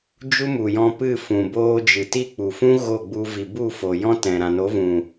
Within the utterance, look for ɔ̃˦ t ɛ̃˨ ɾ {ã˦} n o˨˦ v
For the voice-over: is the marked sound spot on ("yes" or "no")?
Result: no